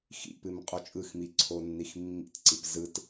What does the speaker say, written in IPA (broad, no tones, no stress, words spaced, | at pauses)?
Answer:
xḭpɨm qʼot͡ʃʼɯxmi ǀʰonːixmːḭtǀip zɯt